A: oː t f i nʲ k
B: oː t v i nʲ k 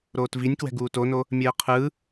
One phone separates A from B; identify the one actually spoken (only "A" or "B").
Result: B